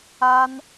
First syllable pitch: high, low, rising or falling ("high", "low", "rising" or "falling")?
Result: high